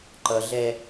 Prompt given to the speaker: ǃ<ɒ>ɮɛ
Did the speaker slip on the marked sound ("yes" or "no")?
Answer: yes